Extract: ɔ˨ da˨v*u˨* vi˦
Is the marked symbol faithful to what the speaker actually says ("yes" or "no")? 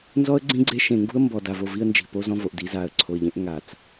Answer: no